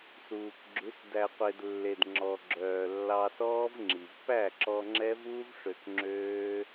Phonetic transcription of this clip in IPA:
s uː˨ k ɡ͡ǁ ʉ˨˦ s d æ˨ qʷ e˨ d lː e˨ d ŋ͡ǁ ɔ˨ ɡ͡ǁ œː˨ lː ɑ˧ s ɔː˦ v ŋ͡ǁ i˨ v p æ˦˨ ǁ ɔ˧ ŋ͡ǁ ɛ˦ v uː˦ v ʂ ø˧ k ŋ͡ǁ øː˦

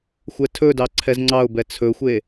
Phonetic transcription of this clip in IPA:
xʷ ɛ tʰ ɵ d ɑ ǀʰ ɛ z ŋ͡ǀ ɑ ʊ̯ b ɛ t͡sʰ ɵ xʷ e

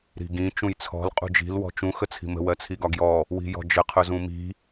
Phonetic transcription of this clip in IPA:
ɾ i̤ ɡ ĩ t͡ʃ ũ j t͡sʰ ɔ̤ l qʼ ṳ d͡ʒ i̤ l w ɔ̤ t͡ʃ ũ x ə t͡sʰ i̤ m ə̤ w ɜ t͡sʰ i ɡ ɒ ɡ j ɔ | w i̤ j ɔ̤ d͡ʒ ə qʰ ʊ z ũ m i̤

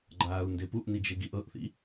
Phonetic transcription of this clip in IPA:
ɡ͡ǃ aː u̯ n d e p u ʔ n i d͡ʒ e ɡ i ʔ ɤ ʔ θ ḭ

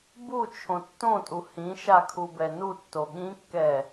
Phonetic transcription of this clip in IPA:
b u t͡ʃʰ õ tː õ tʼ u h ĩ ʃ a kʰ u b ɛ n u tː o ɠ ĩ kː ɛ

